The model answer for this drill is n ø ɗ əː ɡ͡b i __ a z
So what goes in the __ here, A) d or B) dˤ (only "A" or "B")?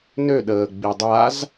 B